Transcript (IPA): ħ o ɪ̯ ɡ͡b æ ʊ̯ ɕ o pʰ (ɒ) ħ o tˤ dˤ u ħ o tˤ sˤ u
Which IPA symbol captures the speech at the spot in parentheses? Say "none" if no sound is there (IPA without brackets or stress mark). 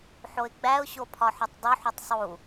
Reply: ɒ